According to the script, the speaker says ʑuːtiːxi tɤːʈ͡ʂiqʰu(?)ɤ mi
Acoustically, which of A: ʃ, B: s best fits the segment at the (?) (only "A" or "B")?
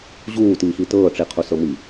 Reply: B